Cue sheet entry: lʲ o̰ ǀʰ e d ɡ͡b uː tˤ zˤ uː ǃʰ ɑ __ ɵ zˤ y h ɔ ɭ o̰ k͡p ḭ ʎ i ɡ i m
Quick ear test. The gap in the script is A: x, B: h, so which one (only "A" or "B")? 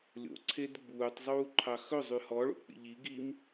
A